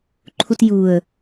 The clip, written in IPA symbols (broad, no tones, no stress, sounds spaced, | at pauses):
ǃʰ u t j u ə̯